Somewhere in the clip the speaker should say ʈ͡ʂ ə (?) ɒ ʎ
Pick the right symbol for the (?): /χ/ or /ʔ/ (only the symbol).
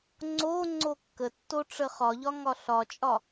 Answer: χ